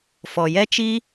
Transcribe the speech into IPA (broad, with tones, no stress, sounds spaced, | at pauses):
f ɔ˨ j ɛ˦ t͡ʃ i˦